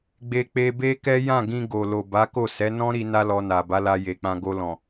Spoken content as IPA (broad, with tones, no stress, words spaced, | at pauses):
ɡ͡be˧k͡pe˧be˦kɛ˦ jã˦˨ɡĩ˧ ɡo˨lo˨ba˨˦ko˦˨ sɛ˨˦nɔ̃˦ɾi˧ na˦lɔ˧na˨ ba˨˦la˧je˨k͡pã˧ ɡo˧lɔ̃˨